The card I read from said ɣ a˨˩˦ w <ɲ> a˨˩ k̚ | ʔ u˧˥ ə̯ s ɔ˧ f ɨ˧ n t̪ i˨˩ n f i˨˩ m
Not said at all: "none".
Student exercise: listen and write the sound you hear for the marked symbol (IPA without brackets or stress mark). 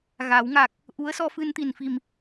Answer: ŋ